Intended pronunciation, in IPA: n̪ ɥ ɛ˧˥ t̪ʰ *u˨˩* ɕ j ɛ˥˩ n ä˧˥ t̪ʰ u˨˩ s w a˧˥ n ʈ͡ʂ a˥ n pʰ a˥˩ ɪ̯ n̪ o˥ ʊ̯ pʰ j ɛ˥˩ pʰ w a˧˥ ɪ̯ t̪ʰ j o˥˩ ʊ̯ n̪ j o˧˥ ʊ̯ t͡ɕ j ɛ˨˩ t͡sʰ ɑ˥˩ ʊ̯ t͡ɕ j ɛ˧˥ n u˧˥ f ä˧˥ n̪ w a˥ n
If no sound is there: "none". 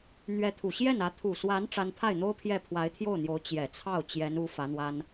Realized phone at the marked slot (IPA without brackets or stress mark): u˨˩